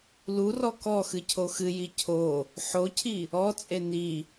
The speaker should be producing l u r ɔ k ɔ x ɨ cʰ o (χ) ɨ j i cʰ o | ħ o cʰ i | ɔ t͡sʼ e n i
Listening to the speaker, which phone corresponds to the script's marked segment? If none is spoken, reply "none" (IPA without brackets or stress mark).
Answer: x